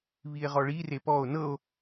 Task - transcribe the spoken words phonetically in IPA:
β i e̯ ʁ ɔ ɭ i r e p ɔ o̯ n ɤ o̯

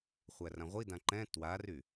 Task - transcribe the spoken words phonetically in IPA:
χʷ æ r ã ʁʷ i d ã ǃ ɛ̃ t w a r y

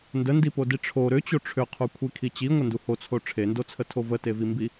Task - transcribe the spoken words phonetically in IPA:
n d ə n d i p o d i ʈ͡ʂʰ o ɾ ʏ t͡ɕ o ʈ͡ʂʰ ʏ qʰ u kʷʰ i kʰ i t͡ɕ i ŋʷ ə n d u h o t͡sʰ o ʈ͡ʂʰ e n d o t͡sʰ ə tʰ o v ə t e v i m b i

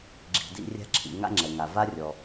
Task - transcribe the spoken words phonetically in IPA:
ɡ͡ǁ i̤˩ d ḭ˧ rʲ a̤˥ ǁʰ ḭ˩ ŋ a̰˥ ŋ͡ǁ ɛ˩ ŋ a˩ v a˥ rʲ ɔ˩

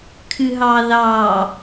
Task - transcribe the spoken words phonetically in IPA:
kʰ ɨ ɦ ɑ ð ɑ

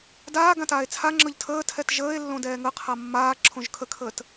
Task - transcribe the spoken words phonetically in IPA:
d aː ɡ ã t aː e̯ t͡sʰ a ŋ͡ǁ ɤ ʎ tʰ əː tʰ ɛ t ʒ əː e̯ lː õ d ɛː ŋ ə qʰ a mː aː ǁʰ õ ʒ kʰ ə kʰ əː t

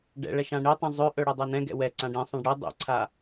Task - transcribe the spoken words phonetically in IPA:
ɖ ɛ̰ ɭ ɛ ʃ ã ɳ i tˤ ĩ zˤ ø ʔ ɵ ɽ ø dˤ ɜ n ɛ̃ ɡ ɛ̰ w ɛ ǀ ã ɖ ĩ sˤ ɛ̃ ɖ ɽ i dˤ ḭ ǀʰ a

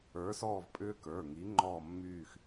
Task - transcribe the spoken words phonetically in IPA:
ə˞˨˥ s ɔː˦˨ v pʼ ʏː˦ k ə˞˩˧˩ ŋ i˨˥ ŋ͡ǃ ɔː˦˨ mː yː˦˨ x

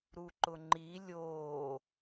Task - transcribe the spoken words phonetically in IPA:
ɾ u ǃ ʊ ŋ͡ǃ i lʲ oː

